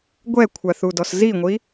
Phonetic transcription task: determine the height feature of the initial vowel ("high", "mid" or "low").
mid